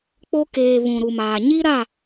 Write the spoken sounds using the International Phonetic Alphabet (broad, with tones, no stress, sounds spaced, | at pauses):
k͡p o˦ k eː˨ β ũ˨ ɾ u˨ m aː˨ ɲ i˦ ɾ a˦˨